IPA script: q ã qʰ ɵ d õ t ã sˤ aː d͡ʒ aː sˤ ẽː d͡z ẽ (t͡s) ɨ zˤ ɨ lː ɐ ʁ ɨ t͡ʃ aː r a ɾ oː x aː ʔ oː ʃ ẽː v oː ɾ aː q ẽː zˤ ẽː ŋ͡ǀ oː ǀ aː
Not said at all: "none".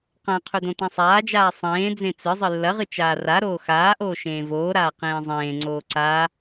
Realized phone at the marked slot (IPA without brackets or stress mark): t͡s